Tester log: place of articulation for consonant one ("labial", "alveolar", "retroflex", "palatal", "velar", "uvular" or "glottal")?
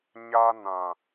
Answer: palatal